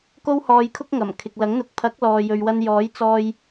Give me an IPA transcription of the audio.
k o˥ w h ɔː˧ j kʰ ʊ˥ k̚ ŋ ɐ˨˩ m kʰ ɪ˨ k̚ l ɐ˨˥ ŋ n̪ ʊ˨˥ k̚ pʰ ɐ˨˥ k̚ l ɔː˨ j ɵ˨ ɥ w ɐ˧ n j ɔː˨˥ j t͡s ɔː˧ j

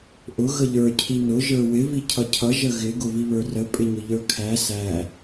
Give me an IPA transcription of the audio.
ʔ ʊ ɣ ə ʎ ə˞ cʰ i n ʊ ʒ ə˞ w ɪ v i cʰ ʌ cʰ ʌ ʒ ə ɣ ɪ ɡ ʊ v i β ə˞ r ə pʼ ɪ ɲ ʊ ʎ ə˞ kʰ æ s æ

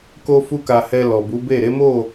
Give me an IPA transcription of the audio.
k o˦ f u˦ k a˧ h ɛ˧ l ɔ˨ b u˨˦ b e˦˨ ɾ e˨˦ m o˦˨

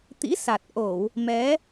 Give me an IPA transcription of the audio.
t̪ ḭ˧˥ s a˨˩ t̚ ʔ o˧˩˨ w | m ɛ˨˦

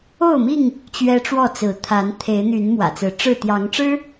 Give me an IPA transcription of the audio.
o˥˨ ʊ̯ m i˥˨ ŋ | t͡ɕ ɥ ɛ˦ ʈ͡ʂ w ɔ˥˨ t͡s ɹ̩˨˦ t̪ʰ a˨˦ n t̪ʰ e˨˦ ɪ̯ n̪ y˨˦ n m w ä̰˨˩ t͡s ɹ̩˨˦ ʈ͡ʂ ɻ̩˥˨ t̪ j ɑ˨˦ ŋ ʈ͡ʂ ɻ̩˦

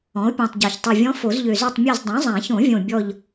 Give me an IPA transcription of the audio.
ɔ̃˩˥ o̯ pʲ ɔ̃˨˩ tˤ ɟ a˨˩ ç tˤ o˨˩ vʲ ɔ̃˧˥ f o˨˩˦ z ʎ ø˨˩ z ø˦˨ tˤ mʲ a˦˨ z dˤ õ˩˥ zˤ ã˨˩˦ ç õ˨˩˦ vʲ õ˨˩ bʲ ɔ˦˨ ʎ

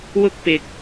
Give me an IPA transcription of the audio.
w ʊ˥ k̚ p ɪ˨˥ k̚

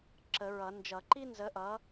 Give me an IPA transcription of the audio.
ǁ ə˨˩˦ ɹ ʌ˨˩˦ n d͡ʒ ʌ˨˩˦ ǃ i˥ n z ə˨˦ ʔ ʌ˨˦

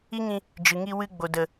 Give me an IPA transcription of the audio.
i˦ ŋ ĩ˧ | d͡ʒ ɨ˨ ŋ i˧ w ɨ˧ ɡ͡b o˨ d ə˨

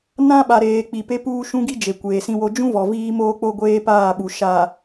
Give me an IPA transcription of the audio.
n ã˦ ɓ a˨ ɾ eː˨ k͡p i˨ p e˦ p uː˦ ʃ ũ˦ ɡ i˦ d͡ʒ e˨ kʷ eː˨ s ĩ˦ w o˦ d͡ʒ ũ˦ v ɔ˨ v iː˦ m oː˦ k͡p o˦ ɡʷ eː˦ p aː˦˨ ɓ u˨ ʃ a˨

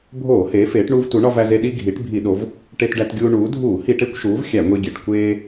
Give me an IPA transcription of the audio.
bʱ oː˧˩˧ h eː˩˧ f eː˩˧ ʈ ɳ uː˧ v t u˩˧ ɳ ɒ˧ v æ˧ z e˧ ɗ i˧ ɡʱ i˩˧ ʈ bʱ i˧˩˧ ɗ o˩˧ v | ʈ e˧ t ɖ æ˧ t ɡʲ uː˧ ɳ uː˩˧ dʱ uː˧˩˧ h i˧˩˧ ʈ e˧ kʷ ʃ uː˩˧ v xʲ æ˧˩˧ ŋʷ i˧ ɡʲ e˩˧ ʈ kʷ eː˧

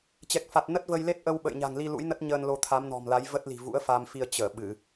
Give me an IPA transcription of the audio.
t͡ɕ ɛ˨˩ k̚ f a˨˩ t̚ n ə˦˥ t̚ v ə˧ j l e˦˥ t̚ ʔ ə˧ w ɓ ə̰˧˨ j ɲ a̤˨˩ ŋ l i˧ l ṵ˧˥ j n ə˦˥ t̚ ɲ əː˧ n l o˧ t̪ʰ a˨˦ m n ɔ̤˨˩ m l a˨˦ j v ə˦˥ t̚ l i̤˨˩ v ṵ˧˥ ə̯ f a˧ m f i˧ ə̯ t͡ɕ əː˧˩ ɓ ɨ˧˩˨

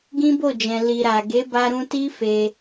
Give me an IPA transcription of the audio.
ɡ ĩ˦ b o˦˨ d͡ʒ ɛ̃˨ l i˨ ɾ a˨ ɡ e˨˦ b a˧ ɾ ũ˧ t i˦ f e˧

